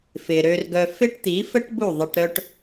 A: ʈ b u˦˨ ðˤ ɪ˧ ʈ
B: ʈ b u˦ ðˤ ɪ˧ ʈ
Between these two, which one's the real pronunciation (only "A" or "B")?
A